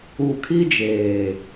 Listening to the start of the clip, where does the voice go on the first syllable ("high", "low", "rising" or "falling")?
low